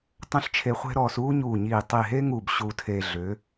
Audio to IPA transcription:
tˤə̃˥˧ɬt͡ʃʰe˧χʷe̤˥ɾɔː˧s uː˥ɲuː˧˩ɲiː˧˩ tˤi˧˩ɦe˥ŋuː˧˩b ɕuː˧tʰe˧ ɮʏ˩˧

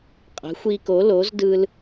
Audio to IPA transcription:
qʼə̤˨˥xʷi˦ko˨˥ lo˨˥zdɯ˦l

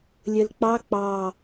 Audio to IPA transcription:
lʲəlk͡pɑ k͡pɑ

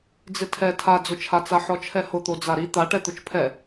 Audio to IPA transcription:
d͡zɪtʰɛ tʰad͡zʊt͡ʃʰat͡sa ħɔt͡ʃʰɛhʊt̪o d͡zaɾi t̪aʈɛ t̪ʊt͡ʃpʰɛ

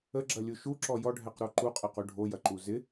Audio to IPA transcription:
əɡ͡ǁɐlʲu ʃuǁɔ jɔɖʱɛqɾo ǃuqʼɐqu ɖʱojɐǃu zɪ

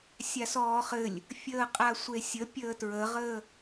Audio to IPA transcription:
sʲasɔːχɘlʲ | fʲəːqʼasʷesʲə pʲəːtɹəʁəː

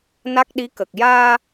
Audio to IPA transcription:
na˦˥k̚ɗi˧˥kə˨˩k̚ jaː˧

